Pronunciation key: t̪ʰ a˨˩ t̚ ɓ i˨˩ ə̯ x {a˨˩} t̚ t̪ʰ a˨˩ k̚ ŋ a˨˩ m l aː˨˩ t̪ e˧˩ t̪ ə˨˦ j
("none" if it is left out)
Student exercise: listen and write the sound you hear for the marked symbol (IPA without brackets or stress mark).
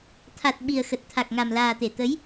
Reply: ə˨˩